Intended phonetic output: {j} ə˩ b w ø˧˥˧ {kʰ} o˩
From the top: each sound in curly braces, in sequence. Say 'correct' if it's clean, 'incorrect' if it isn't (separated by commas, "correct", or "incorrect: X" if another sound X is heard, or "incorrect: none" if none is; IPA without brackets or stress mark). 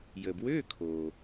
correct, correct